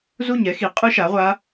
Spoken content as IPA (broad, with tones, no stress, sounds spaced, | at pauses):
z u˥˨ ɲ ɛ˦˥ x i˨˥ qʼ ɯ˦˥ ʃ a˨˥ ʁʷ a˦˥